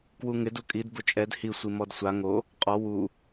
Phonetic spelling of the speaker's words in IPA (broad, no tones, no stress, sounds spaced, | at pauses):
k w u ŋ ɪ d u kʼ i d b ʊ t͡ʃʼ ɛ d h i sʷ i m ɔ d sʷ a ŋ o | qʼ ɔ w u